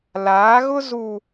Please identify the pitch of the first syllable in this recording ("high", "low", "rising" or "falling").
rising